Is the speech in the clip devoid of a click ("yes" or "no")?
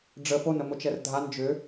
yes